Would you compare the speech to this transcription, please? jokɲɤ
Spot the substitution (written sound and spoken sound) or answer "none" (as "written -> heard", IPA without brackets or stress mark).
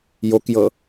ɲ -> j